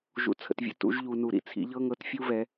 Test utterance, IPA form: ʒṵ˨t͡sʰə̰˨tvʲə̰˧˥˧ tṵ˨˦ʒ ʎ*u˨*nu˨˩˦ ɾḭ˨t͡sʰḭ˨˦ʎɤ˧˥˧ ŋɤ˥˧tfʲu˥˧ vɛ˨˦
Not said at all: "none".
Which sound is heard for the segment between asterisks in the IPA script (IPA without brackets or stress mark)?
u˨